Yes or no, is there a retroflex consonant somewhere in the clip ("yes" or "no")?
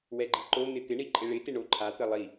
yes